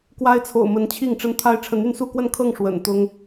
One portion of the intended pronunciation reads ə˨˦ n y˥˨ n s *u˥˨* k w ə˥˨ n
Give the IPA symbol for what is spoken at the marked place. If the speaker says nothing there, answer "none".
u˥˨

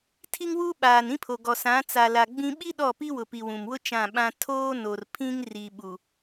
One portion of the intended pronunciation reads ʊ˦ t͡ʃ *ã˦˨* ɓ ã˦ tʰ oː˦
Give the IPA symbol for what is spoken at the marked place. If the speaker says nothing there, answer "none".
ã˦˨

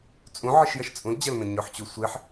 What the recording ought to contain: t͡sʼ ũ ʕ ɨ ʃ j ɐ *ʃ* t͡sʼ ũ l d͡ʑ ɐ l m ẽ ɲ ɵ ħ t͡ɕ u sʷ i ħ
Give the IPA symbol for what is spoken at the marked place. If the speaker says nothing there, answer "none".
ʃ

